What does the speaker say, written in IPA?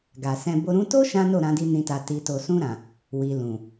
ɡ a˨ s ɛ̃˧ b o˧ ɾ ũ˧ t o˦ ʃ ã˦ n o˦˨ ɾ ã˧ d i˧ n ĩ˨ t a˨ t i˨ t o˨ s ũ˧ ɾ ã˨ | w i˨ l ũ˨

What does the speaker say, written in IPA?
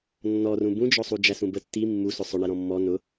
nː ɔ r ũ b ũ d͡ʒ ɔ sˤ u d͡ʒ æ s ũ b ə tː i mː u s ʊ sˤ ʊ ɳ ɛ ɾ ɔ̃ mː ɔ n ʊ

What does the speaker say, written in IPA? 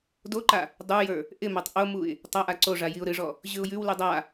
d o ǃ a | dˤ ə˞ j ə˞ | ʔ ɪ m a tˤ ʔ o m u ɪ̯ | tˤ a ʔ a ǀ o ʐ a j i ʊ̯ ɾ ɨ ʐ ɔ | ʑ ʉ ʊ̯ j ʉ w l ʉ dˤ a

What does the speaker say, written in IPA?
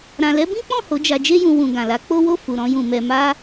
ɾ ã˨ l ɛ˨˦ b ĩ˦ k͡p ɔ̃˦˨ h o˨˦ d͡ʒ a˧ d͡ʒ e˦ j ũ˧ w ũ˨ ɡ ã˨ l a˨˦ k͡p o˦ w o˦˨ f u˨ ɾ ɔ̃˧ j ũ˨ m ɛ˨ m a˧

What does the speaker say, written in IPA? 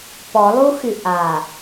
p ɔ lˠ u x y ʔ a

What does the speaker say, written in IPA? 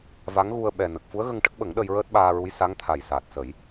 v a˧˥ ŋ ɣ u˧ ə̯ ɓ ɛ˨˩ n ə˨˩ k̚ f u˧˥ ə̯ ɣ ə˧ ŋ ʈ ə˦˥ k̚ ɓ ə˨˩˦ ŋ ɗ ə˧ j ɹ əː˦˥ t̚ ɓ aː˧ ɹ u˧˥ j s a˧˥ ŋ t̪ʰ a˨˩ j s aː˨˩ t̚ s ə˨˩˦ j

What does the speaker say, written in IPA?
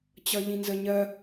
t͡ɕ ʌ ʎ ĩ n z ə ɲ ɜ

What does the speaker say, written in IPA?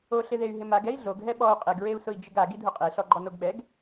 o ɬ ɪ ð e y̯ ɦ ɪ m a ɡ ɛ i̯ ɮ o ɡ ɦ ɛ ɓ ɔ u̯ qʼ e ɡ ɹ e u̯ s ʊ i̯ d͡ʒ ɪ ɡ a ɡ i dʱ ʊ qʼ e ɬ ɔ ɡ͡ǃ ɔ n o ɡ ɓ ɛ ɡ

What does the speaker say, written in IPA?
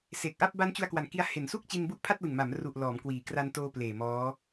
s e˨˩ k̚ ʔ a˥˩ p̚ b a˦˥ n t͡ɕ u˧ a̯ k w a˨˩ n k i˧ a̯ h e˨˩ n s u˥˩ k̚ t͡ɕ i˧ n b u˦˥ ʔ pʰ a˥˩ t̚ l ɯ˨˩ ŋ m a˩˦ m r u˨˩ ʔ l ɔː˩˦ m k w iː˩˦ k r a˧ n t oː˧ p l eː˨˩ m ɔː˦˥

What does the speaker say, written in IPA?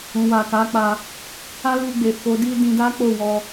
ũ˨ w a˨ k a˨˦ k͡p a˧ | a˦ l u˧ ɡ͡b e˨ f o˨˦ d i˦ d ĩ˧ d a˦ k͡p o˦˨ w ɔ˧

